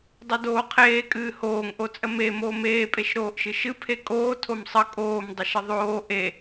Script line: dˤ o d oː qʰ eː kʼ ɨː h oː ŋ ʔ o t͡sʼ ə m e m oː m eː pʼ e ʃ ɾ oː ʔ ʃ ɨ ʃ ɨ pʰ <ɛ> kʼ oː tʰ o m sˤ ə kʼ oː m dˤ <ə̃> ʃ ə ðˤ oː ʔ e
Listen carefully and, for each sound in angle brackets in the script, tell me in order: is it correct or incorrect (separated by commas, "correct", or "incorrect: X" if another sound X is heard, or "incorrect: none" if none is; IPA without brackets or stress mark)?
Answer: incorrect: e, incorrect: ə